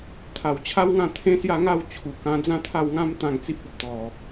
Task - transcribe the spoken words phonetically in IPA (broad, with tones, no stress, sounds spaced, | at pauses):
t̪ʰ a˨˩ w t͡ɕʰ a˦ w ŋ ã˥˧ t̪ʰ ẽ˦ s j a˥˧ ŋ a˥˧ w t͡ɕʰ u˨˩ k ã˧ d͡z ã˦ t̪ʰ a˥˧ w ŋ ã˦ m t̪ ã˥˧ ŋ t͡s i˦ p̚ ɔ˦ p̚ t̪ ɔ˨˩